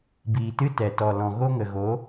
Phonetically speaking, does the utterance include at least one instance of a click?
no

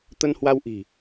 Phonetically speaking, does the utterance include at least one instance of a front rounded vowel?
no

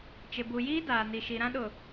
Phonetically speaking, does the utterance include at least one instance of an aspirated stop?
no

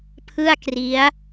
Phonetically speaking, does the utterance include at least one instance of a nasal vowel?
no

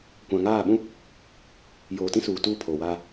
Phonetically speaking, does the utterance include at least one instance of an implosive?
yes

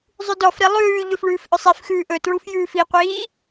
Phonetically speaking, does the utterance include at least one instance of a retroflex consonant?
yes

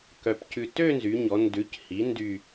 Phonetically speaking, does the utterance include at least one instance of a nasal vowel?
no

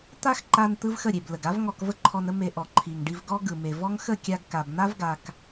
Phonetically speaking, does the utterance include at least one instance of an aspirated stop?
yes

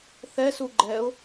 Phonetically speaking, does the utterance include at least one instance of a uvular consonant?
no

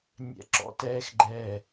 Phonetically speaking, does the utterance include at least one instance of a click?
yes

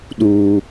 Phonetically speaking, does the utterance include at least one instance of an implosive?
yes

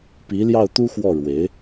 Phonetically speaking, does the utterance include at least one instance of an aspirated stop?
no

